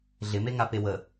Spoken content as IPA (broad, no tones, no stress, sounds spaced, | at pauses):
ɮ ɪ m e ŋ a p e w ə